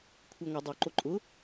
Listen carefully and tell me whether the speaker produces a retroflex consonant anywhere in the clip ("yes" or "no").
no